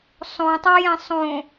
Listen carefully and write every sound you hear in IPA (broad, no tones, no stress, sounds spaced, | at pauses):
sˤ õ tˤ a j ɛ̃ sˤ õ